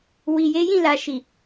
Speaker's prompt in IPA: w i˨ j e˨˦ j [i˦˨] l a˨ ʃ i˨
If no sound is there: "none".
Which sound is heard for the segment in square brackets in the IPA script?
ĩ˦˨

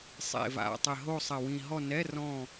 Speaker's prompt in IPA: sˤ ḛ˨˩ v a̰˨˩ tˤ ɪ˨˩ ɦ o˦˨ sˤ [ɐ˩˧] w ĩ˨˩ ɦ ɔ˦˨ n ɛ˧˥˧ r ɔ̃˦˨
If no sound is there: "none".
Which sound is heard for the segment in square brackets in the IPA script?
ɐ˨˩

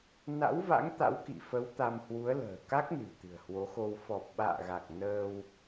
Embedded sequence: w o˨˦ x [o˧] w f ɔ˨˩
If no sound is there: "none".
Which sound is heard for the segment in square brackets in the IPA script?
o˧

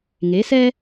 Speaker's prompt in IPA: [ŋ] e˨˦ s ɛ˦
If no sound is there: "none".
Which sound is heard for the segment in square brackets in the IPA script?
ŋ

